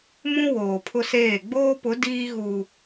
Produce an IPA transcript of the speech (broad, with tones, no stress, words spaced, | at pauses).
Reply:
mũ˦ woː˨pʰʊ˦seː˦˨ ɡ͡boː˦pʊ˨˦ diː˦ɣu˨